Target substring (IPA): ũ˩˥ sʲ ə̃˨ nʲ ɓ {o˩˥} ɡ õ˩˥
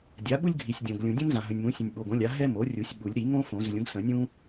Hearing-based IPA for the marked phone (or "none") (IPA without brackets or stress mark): o˨